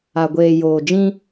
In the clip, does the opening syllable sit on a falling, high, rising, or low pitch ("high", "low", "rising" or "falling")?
low